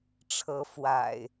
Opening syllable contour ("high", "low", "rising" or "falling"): rising